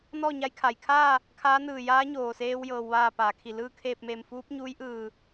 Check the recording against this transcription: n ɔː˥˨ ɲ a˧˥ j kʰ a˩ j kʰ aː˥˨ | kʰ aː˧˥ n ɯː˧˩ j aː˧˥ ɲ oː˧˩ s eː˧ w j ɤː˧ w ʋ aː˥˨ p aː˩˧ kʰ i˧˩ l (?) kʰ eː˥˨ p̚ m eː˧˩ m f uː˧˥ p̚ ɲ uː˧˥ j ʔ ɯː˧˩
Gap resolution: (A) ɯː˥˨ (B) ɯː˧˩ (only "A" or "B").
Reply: A